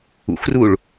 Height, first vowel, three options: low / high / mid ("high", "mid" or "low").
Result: high